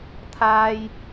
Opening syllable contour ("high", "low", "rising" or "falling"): high